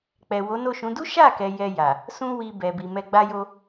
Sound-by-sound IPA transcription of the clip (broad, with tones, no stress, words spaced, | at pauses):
k͡pɛ˨wo˨˦no˦˨ʃũ˨˦ du˦ʃa˦˨kɛ˨ jɛ˧ja˨ | sũ˦wi˧ bɛ˨bi˨mɛ˧ ɡ͡ba˧jo˧